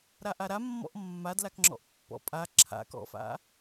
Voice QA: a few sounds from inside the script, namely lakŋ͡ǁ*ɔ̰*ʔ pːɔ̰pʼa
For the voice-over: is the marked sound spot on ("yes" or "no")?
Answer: yes